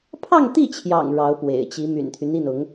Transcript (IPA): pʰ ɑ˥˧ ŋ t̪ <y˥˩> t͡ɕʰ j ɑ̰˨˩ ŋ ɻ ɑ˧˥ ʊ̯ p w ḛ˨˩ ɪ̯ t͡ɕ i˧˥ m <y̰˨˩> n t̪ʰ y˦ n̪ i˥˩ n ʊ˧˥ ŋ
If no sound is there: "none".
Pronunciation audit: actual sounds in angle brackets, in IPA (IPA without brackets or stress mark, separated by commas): i˥˩, y̰˨˩